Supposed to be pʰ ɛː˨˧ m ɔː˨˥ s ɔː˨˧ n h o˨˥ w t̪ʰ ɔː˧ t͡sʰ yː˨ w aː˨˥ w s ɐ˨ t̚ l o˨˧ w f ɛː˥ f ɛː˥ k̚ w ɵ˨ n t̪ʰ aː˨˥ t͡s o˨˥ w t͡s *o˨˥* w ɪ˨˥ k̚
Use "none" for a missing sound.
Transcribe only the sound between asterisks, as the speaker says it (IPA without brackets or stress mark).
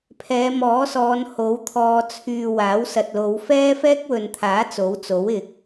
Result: o˨˥